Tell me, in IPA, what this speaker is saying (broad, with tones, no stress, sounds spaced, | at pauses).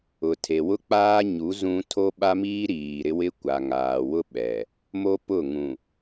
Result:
ʊ˨ tʰ e˨ w ʊ˦ k͡p aː˦ ɲ u˨˦ z ũ˦ tʰ o˦ ɓ a˦ m iː˦ ɾ iː˨ ɾ ɪ˦ w ɪ˦ kʷ a˨ ŋ aː˨ w ʊ˦ ɓ ɛ˨ | m o˦ p ʊ˦˨ ŋ ũ˨